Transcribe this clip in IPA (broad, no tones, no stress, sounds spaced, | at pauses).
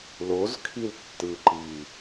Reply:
l o z kʰ i l tː ɯ ǃ i